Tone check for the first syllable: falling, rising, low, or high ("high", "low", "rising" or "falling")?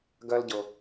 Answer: high